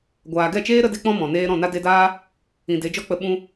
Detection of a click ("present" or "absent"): absent